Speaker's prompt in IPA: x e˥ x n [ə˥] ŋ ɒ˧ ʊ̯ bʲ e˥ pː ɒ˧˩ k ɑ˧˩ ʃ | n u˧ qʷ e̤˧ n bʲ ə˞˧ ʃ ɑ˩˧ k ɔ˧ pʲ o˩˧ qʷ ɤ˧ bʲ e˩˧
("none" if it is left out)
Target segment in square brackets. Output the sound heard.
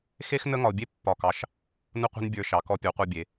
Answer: ə˥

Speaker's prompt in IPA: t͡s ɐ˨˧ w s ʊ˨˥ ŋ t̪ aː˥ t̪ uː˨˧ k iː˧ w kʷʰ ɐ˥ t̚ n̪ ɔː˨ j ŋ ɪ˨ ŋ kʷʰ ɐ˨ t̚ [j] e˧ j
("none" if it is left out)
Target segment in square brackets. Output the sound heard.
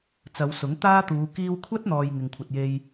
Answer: j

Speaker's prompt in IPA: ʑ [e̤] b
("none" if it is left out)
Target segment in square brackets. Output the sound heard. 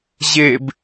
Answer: e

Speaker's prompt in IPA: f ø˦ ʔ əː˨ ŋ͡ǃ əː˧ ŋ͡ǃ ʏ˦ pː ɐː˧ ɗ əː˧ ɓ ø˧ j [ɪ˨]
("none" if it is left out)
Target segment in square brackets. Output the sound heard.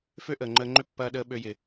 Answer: ɪ˨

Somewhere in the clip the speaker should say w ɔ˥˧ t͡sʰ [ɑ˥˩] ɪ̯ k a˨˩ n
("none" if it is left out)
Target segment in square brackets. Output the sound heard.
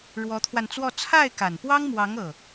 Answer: a˥˩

